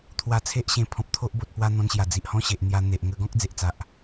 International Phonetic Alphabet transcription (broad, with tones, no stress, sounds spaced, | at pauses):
t̪ʰ w a˧ t͡sʰ e˦ ʔ ɕ ẽ˧ pʰ ɔ̃˨ p̚ t̪ʰ o˦ ʔ b o˨ t̚ p w a˧ n̪ ɔ̃˧ n ɕ j a˨˩ d͡z i˨ ʔ h ɔ̃˥˧ ɕ e˨ ʔ n̪ j a˧ n̪ e˨ ʔ ŋ ə˧ ɡ ɔ̃˦ k̚ d͡z e˨ ʔ t͡s a˨ ʔ